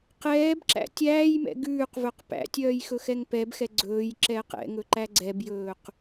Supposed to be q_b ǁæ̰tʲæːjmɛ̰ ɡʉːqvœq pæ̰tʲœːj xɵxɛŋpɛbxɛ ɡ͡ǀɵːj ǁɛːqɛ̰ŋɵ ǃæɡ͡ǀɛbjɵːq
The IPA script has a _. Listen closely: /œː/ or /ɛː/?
ɛː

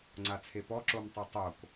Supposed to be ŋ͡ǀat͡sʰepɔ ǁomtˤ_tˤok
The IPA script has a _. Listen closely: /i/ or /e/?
i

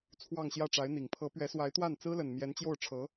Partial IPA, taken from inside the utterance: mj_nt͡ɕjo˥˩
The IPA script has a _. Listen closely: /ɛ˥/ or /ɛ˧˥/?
ɛ˧˥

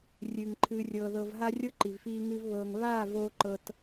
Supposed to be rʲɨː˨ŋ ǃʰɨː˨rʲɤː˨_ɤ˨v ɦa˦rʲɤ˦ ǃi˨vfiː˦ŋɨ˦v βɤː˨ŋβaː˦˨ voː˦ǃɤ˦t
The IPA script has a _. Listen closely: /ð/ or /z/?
ð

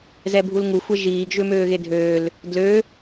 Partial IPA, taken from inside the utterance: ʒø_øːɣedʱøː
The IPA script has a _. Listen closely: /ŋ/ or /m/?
m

